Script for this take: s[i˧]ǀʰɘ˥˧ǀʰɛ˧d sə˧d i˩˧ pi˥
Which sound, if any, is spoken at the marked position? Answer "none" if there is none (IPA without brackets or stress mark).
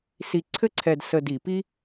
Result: i˧